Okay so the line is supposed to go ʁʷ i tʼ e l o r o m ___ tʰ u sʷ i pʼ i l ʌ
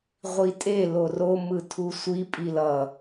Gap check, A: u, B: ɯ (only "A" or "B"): B